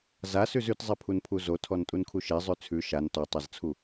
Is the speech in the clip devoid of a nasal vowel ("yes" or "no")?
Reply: yes